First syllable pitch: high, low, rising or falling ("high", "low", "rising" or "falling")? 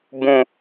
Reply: high